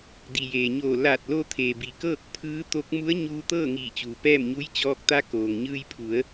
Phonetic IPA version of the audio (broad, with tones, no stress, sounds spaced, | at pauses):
d i˩ j eː˩ ɲ oː˧˩ l aː˧˩ t̚ l o˧ t̪ʰ eː˩ b i˩ k ɤː˥˨ k̚ pʰ ɯː˧˥ t̪ o˧˥ k̚ m u˧˥ ə̯ ɲ uː˧ t̪ ɤː˥˨ ŋ iː˧˩ t͡ɕ uː˩ p ɛː˥˨ m ɲ u˧˥ j t͡ɕ ɔː˧ k̚ t̪ a˧˥ k oː˩ ŋ ɲ ɯː˧ j pʰ u˩˧ ə̯